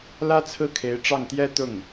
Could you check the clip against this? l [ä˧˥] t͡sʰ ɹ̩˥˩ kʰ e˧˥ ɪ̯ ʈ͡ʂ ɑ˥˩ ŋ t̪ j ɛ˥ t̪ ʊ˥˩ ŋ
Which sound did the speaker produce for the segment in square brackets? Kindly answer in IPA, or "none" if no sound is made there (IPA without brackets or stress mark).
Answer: ä˥